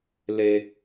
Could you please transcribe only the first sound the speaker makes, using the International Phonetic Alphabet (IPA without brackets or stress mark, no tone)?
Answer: l